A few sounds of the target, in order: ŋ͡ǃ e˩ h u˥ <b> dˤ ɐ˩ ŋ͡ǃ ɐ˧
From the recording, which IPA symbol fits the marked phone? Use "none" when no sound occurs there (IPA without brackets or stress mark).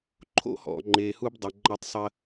b